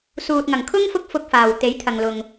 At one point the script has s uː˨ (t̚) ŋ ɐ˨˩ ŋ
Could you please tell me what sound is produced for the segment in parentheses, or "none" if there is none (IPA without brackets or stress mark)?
t̚